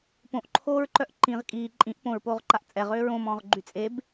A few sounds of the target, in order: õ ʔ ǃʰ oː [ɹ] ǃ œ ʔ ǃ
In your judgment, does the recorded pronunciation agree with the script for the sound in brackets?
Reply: yes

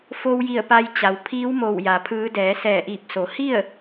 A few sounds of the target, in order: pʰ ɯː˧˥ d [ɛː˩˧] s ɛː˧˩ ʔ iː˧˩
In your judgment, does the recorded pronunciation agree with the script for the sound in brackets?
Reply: yes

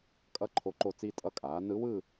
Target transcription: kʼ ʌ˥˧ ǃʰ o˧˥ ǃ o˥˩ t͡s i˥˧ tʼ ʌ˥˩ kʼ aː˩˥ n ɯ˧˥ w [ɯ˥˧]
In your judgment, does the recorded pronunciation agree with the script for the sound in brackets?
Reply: yes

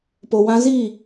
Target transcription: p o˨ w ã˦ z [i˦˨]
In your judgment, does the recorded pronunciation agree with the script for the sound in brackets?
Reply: yes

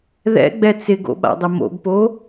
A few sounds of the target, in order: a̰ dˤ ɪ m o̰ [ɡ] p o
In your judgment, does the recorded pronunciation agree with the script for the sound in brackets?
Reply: yes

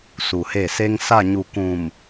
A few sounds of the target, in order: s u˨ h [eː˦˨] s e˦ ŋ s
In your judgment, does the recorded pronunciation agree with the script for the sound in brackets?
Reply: no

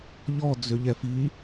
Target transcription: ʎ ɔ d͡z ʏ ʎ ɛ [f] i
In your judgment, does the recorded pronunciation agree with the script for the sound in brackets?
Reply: yes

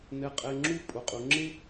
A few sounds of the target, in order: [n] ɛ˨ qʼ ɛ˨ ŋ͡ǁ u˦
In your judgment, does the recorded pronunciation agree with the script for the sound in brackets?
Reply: yes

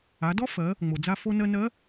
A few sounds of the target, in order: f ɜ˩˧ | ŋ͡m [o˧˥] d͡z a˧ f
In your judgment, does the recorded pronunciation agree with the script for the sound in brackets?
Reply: no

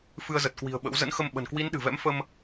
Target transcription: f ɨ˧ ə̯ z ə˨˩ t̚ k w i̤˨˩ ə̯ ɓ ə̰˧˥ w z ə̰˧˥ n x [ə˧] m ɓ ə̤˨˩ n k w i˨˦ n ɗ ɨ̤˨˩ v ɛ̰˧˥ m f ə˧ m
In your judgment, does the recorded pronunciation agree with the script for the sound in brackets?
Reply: yes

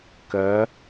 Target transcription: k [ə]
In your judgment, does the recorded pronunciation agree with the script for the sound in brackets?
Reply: no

